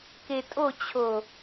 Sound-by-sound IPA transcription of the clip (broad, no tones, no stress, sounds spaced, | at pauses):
k e tʼ o t͡ɕʰ o